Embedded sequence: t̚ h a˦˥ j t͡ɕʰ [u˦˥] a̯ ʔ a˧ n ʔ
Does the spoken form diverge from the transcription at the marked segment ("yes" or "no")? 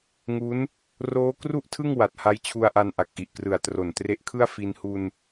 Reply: yes